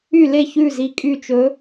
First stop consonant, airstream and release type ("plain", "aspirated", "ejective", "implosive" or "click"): ejective